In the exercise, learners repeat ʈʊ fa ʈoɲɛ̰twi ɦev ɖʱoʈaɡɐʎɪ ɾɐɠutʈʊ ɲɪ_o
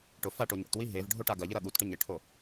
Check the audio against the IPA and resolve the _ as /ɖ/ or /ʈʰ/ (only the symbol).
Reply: ʈʰ